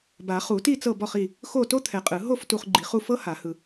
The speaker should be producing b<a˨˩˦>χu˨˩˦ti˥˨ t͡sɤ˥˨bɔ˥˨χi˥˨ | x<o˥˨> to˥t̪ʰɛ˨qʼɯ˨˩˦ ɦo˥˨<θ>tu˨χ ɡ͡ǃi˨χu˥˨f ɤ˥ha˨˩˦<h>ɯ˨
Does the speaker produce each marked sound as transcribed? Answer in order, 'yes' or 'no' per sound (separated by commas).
yes, yes, no, yes